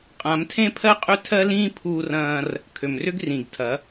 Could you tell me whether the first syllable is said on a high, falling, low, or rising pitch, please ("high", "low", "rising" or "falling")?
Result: rising